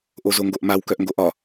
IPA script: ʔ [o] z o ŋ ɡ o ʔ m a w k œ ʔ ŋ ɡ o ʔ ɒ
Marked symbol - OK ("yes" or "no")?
yes